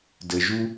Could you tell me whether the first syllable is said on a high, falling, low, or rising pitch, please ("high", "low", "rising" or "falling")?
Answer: low